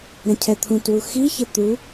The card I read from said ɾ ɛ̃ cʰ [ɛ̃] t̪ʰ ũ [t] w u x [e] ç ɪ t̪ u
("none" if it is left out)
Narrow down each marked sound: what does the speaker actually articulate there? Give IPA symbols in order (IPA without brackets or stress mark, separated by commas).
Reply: ɛ, t, i